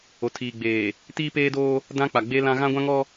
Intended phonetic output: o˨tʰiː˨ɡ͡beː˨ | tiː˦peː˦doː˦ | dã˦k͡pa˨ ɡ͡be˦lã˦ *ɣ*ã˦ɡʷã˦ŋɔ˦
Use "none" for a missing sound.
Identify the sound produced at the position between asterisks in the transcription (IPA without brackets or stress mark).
ɣ